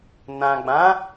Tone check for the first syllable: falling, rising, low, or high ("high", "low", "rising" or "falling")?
low